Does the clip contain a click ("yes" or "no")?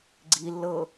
yes